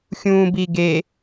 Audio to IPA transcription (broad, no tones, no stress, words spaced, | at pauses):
xʲũːbiɡe